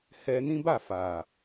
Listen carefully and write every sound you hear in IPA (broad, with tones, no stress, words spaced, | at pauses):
hɛ˧nĩ˦ba˦˨ fa˨